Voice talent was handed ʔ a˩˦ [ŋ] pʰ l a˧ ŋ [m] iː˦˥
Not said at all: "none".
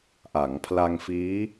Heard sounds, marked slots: ŋ, f

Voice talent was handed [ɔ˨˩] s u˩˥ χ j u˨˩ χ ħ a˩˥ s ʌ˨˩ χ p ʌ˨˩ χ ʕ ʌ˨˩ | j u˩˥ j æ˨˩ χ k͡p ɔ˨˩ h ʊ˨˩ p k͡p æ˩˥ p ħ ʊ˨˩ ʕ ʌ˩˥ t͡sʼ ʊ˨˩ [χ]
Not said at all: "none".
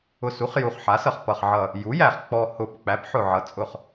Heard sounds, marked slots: ʊ˨˩, χ

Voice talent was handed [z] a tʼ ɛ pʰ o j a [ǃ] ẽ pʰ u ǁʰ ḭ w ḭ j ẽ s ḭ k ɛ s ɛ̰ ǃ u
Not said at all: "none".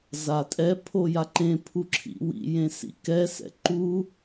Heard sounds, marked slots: z, ǃ

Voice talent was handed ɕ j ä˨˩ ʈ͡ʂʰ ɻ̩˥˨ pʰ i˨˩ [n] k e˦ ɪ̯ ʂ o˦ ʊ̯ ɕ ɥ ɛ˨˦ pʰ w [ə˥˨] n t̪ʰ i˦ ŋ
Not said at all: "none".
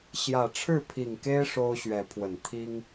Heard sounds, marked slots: ŋ, ə˨˩

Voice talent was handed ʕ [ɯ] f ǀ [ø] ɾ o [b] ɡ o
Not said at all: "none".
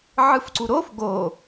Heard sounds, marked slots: ɯ, u, f

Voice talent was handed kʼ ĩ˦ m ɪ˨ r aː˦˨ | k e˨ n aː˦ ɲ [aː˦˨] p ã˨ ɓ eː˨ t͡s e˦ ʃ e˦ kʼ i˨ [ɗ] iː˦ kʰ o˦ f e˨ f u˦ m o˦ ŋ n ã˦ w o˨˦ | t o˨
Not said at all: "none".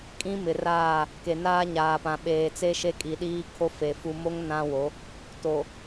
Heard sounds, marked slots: aː˨, ɗ

